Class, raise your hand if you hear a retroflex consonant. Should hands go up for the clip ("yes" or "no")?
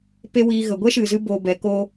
no